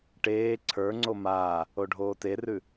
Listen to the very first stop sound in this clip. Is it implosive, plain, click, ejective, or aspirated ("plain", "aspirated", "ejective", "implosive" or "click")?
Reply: plain